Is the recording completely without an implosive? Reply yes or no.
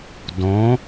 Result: yes